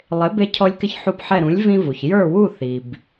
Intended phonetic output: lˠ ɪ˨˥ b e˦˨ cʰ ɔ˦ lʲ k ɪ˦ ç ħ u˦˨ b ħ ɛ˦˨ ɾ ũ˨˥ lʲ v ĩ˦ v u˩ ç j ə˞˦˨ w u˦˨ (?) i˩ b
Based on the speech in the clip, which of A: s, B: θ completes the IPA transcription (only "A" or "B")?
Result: B